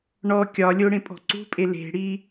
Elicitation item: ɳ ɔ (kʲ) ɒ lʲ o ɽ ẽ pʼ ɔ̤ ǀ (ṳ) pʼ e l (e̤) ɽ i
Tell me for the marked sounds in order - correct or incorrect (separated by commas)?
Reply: correct, correct, correct